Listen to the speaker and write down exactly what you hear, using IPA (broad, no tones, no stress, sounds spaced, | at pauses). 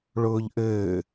ɭ ʊː ʎ ʔ ɘː